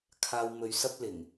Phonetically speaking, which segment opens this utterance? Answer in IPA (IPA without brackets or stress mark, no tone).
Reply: kʰ